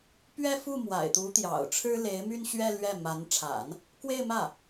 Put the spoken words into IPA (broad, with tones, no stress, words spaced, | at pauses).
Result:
pɥɛ˥ fu˥˩ mwa̰˨˩ɪ̯t̪u˧˥t̪jɑ̰˨˩ʊ̯ʈ͡ʂʰɻ̩˥ le˧˥ɪ̯my˥˧nɕɥɛ˥˧ lɥɛ˥˩ ma˧˥n ʈ͡ʂʰa̰˨˩˦n | kwe˥˧ɪ̯mä˥˩